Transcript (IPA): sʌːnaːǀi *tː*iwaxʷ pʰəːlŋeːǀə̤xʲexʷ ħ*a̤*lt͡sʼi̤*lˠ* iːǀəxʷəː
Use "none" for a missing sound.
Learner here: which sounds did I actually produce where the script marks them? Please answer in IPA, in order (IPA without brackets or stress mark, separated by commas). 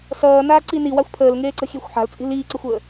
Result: n, a̤, l